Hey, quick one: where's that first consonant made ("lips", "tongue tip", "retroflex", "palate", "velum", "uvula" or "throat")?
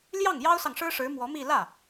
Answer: tongue tip